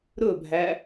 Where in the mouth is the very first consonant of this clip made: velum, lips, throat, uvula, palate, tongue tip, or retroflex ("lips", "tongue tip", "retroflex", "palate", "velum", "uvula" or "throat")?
tongue tip